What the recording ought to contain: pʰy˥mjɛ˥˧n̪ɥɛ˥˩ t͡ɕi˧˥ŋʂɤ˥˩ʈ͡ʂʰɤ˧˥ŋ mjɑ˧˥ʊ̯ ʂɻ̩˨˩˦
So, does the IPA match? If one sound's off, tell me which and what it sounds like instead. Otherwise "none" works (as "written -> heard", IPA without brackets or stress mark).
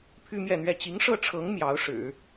none